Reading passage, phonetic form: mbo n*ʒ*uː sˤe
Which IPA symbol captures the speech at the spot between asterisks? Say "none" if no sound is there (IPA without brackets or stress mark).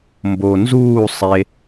z